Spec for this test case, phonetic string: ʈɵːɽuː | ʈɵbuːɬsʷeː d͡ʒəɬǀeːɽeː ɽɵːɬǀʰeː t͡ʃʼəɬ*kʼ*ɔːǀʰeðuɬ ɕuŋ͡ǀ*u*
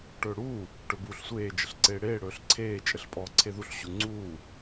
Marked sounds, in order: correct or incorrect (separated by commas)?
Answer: incorrect, incorrect